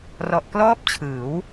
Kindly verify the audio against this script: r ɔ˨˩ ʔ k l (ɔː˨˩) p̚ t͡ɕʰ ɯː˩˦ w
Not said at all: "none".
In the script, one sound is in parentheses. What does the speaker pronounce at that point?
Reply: ɔː˥˩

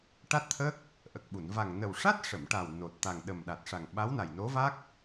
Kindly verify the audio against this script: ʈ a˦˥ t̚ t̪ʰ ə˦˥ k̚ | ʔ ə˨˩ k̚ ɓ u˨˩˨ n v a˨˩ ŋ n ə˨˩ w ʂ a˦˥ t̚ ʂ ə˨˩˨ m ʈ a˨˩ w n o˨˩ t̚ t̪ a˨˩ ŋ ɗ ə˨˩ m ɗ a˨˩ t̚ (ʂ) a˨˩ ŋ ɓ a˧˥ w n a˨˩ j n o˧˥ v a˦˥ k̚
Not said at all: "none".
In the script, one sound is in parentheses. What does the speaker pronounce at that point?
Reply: ʂ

